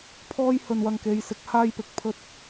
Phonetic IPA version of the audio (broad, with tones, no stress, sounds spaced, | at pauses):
pʰ ɔː˧ j h ɵ˨ n w ɐ˨ ŋ k e˨˧ j s ɪ˨˥ k̚ h aː˥ j p ɪ˨˥ k̚ pʰ ɵ˥ t̚